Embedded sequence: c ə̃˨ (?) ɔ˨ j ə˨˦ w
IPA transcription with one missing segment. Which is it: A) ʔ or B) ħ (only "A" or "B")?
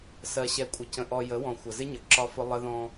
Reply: A